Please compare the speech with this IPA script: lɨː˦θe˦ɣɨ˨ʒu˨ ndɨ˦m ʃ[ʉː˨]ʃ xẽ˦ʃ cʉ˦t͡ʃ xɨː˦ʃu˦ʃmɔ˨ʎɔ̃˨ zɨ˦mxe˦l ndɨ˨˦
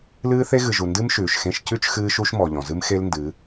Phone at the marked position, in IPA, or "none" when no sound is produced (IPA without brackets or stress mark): ʉː˨